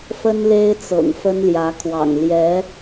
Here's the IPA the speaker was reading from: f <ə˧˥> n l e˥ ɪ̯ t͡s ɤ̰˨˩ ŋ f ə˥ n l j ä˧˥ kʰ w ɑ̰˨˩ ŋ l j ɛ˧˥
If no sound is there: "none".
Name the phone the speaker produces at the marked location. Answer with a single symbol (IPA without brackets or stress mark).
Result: ə˥